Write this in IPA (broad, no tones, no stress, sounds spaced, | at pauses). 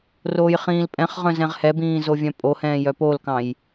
r oː j χ ĩː l pʼ ɛ̃ χ ʁ œ̃ z ɛ̃ ʁ h ɛ b ĩː z o vʲ œ̃ pʼ o h ɛ̃ː j œ p o l k ɑ̃ j